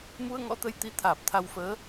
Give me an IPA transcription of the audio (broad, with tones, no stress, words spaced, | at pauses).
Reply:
mu˧ə̯ŋɔ̰˧˥t̪ə˨˦j t̪i˨˦ t̪ʰaː˨˩p̚t̪ʰa˧wfəː˨˦